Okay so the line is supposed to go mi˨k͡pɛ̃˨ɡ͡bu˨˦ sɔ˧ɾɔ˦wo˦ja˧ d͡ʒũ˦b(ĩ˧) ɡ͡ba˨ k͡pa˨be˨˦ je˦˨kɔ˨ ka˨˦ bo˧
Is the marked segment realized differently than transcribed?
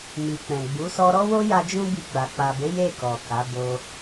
yes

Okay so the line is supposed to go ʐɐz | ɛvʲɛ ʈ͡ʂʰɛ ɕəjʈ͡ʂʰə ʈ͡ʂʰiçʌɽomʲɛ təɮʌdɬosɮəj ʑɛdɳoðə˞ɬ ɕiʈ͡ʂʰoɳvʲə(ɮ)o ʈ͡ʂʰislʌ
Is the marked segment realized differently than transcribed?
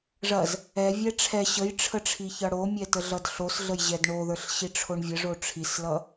yes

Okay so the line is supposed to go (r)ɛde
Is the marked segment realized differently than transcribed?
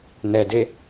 yes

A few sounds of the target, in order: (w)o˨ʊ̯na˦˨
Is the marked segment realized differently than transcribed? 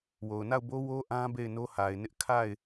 no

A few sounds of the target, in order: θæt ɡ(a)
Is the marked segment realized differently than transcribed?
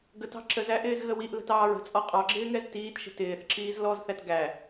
yes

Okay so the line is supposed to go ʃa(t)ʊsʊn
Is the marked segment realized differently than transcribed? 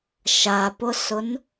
yes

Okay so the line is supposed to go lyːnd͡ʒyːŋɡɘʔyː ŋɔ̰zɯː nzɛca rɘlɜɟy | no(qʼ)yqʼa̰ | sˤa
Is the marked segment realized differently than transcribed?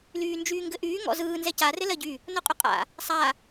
no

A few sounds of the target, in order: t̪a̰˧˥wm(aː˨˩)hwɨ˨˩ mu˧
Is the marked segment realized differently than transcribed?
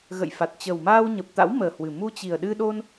yes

